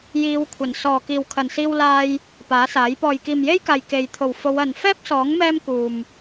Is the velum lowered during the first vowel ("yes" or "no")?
no